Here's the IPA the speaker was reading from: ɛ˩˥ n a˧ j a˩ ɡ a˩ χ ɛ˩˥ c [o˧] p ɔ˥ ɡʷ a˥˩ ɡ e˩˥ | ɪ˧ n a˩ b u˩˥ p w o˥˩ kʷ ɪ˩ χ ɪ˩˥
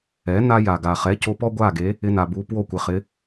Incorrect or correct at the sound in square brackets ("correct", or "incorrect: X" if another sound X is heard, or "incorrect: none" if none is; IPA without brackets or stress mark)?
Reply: correct